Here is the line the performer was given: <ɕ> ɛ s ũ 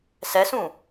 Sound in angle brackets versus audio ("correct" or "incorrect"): incorrect